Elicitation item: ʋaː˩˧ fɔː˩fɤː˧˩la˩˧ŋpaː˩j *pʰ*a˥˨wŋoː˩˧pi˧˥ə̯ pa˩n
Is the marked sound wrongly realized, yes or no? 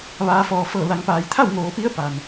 yes